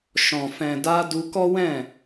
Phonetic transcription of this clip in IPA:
ʃ ɔ̃˨ f ɛ̃˨ d a˧ d u˧ k ɔ˦ w ɛ̃˦˨

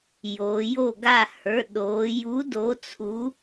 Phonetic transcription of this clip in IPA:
j oː˩˧ j o˥˨ ɡ a˥˨ h ə˞˩˧˩ ɗ oː˩˧ j u˨˥ d o˨˥ t͡sʰ u˨˥

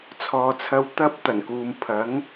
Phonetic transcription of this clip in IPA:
t͡sʰ ɔː˨ t͡sʰ ɐ˧ w t̪ ɐ˥ p̚ t̪ ɐ˨˩ n k uː˨ m pʰ ɐ˨˥ ŋ

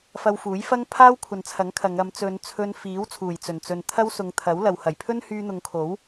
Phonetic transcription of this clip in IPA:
f ɐ˧ w f uː˨˥ j f ɐ˥ ŋ pʰ aː˥ w kʷʰ ɐ˨ n t͡sʰ ɐ˨˥ ŋ kʰ ɐ˨˧ ŋ ɐ˨˧ m t͡s ɵ˨˧ n t͡sʰ ɵ˧ n f iː˨˥ w t͡sʰ uː˨˩ j t͡s ɵ˨˩ n t͡s ɵ˨ n t̪ʰ ɐ˥ w s ʊ˨˧ ŋ t̪ʰ ɐ˨˥ w l ɐ˨ w h ɐ˨˩ j pʰ ɵ˥ n h yː˧ n̪ ʊ˨˧ ŋ kʰ o˨˥ w

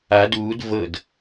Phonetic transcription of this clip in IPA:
a d uː d v ɤ d

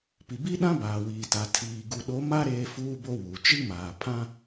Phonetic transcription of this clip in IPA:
p i˨ b i˦ ɗ ã˦ b aː˨ w iː˨ t a˨ tʰ iː˨ ɡ u˨ ɗ o˨˦ m a˦ ɾ eː˦ f uː˦ b o˦ w uː˨ t͡ʃ i˦ m aː˨ pʰ ã˦

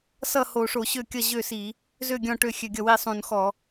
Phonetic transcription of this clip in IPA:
s ʌ˥˩ h o˧˩˧ ʂ o˧˩˧ ɕ ø˥˩ kʲ ʌ˥˩ ʑ ø˥˩ s i˧˩˧ | z ø˥˩ ɡʲ ɔ̃˥˩ ʈ ø˥˩ xʲ ø˧˩˧ ɡʲ ʌ˥˩ w i˥˩ sˤ ũ˧˩˧ n x ɔ˧˩˧

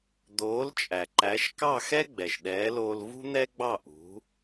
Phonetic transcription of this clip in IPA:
d̪ oː˩˥ l t͡ʃʼ æ˩ ǃ æ˩˥ ʃ k ɑ˥˩ x ɛ˥ ɡ͡b ɛ˩ ʃ ɗ ɛː˩˥ l oː˧ l v ṳ˥ n̪ ɛ˥ ɡ͡b ɑ˥˩ ʔ ṳ˩˥

